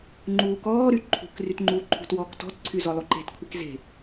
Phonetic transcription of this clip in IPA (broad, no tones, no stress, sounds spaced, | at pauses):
ŋ͡ǃ uː k ɔː ɾ y ǃʰ ṳ k r y t ŋ͡ǃ uː ǃʰ ṳ t w ɔː k t ɔ̤ t ǀʰ y z ɔ lˠ u ǃ e̤ t kʷʰ i k z e̤